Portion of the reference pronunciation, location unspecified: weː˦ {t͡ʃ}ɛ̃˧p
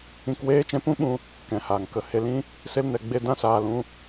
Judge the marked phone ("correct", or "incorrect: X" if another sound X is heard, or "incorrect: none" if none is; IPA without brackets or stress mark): correct